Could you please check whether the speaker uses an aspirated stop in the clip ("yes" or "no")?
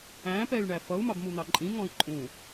no